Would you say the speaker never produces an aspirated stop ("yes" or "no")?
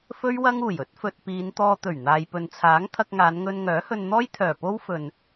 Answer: no